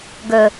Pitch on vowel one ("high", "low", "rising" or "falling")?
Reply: low